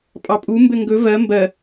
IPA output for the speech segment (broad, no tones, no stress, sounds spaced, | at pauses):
pʼ ɑ pʼ u m b ɘ ŋ ɡ ɵ v ɜ m b ɜ